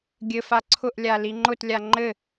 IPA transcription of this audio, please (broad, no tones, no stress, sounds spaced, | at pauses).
ɡʲ ɘ f a ǀʰ ʊ ʔ lʲ a l i ŋ͡ǃ ʊ t lʲ a ŋ͡ǃ ɘ